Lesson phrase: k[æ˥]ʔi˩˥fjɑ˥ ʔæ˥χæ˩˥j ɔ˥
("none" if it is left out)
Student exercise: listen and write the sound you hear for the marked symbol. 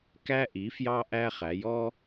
æ˥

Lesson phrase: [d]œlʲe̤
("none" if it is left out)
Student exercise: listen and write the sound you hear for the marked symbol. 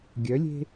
ɡʲ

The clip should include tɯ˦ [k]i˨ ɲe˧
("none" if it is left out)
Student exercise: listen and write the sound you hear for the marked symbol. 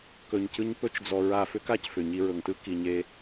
k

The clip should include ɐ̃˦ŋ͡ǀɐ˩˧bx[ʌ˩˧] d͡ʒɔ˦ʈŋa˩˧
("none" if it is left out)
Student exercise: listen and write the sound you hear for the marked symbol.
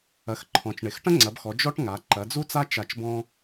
ɔ˩˧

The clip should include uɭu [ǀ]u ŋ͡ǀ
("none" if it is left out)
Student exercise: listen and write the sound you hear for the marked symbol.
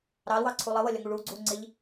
ɡ͡ǀ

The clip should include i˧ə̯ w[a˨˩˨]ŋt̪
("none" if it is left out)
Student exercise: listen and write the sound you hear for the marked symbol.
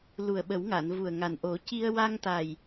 a˧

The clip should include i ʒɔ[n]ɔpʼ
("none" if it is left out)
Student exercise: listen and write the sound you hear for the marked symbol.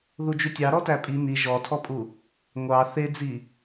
tʰ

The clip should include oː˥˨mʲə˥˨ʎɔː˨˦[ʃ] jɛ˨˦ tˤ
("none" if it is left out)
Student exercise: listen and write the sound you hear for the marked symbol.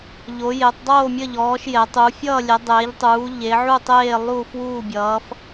ʃ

